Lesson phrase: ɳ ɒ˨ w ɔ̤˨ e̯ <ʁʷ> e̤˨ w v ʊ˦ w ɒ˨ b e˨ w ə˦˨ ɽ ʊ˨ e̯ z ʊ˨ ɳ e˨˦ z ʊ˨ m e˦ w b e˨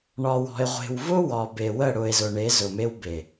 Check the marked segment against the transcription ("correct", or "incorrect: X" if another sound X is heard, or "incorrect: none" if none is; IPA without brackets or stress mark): correct